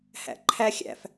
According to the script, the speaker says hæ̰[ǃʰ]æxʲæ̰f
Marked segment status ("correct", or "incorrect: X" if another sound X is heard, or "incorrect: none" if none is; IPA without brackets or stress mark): correct